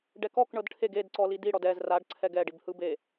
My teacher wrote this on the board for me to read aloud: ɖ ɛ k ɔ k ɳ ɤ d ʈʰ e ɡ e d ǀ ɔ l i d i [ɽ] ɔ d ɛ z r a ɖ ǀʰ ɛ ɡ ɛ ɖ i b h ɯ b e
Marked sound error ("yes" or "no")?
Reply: no